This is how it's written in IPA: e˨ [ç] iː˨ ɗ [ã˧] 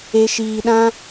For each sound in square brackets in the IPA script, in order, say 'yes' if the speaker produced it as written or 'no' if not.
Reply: no, yes

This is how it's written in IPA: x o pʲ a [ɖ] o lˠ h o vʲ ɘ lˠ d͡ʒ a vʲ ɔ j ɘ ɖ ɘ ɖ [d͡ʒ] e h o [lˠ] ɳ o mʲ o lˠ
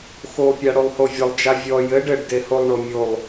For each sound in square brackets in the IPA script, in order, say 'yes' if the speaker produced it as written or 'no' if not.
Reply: no, no, yes

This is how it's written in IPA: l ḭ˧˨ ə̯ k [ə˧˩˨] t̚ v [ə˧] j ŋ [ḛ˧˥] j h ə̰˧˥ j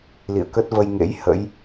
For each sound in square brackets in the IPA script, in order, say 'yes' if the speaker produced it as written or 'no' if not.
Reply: no, yes, yes

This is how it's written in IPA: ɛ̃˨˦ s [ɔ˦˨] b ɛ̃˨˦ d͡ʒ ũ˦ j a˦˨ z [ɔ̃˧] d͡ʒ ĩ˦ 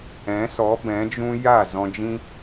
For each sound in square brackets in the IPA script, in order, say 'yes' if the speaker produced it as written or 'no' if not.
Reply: no, yes

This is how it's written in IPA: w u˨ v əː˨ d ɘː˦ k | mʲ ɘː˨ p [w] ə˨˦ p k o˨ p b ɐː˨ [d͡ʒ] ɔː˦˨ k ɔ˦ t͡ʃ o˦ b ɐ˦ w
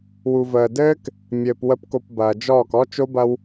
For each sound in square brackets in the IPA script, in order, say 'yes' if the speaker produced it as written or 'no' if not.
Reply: yes, yes

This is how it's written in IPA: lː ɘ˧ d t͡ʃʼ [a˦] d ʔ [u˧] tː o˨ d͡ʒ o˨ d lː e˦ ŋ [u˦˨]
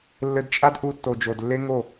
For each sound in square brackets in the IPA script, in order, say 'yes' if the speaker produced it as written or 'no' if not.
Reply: yes, yes, no

